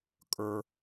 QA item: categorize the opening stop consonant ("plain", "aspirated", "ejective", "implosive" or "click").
ejective